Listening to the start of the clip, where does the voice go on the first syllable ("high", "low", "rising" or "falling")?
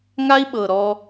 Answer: high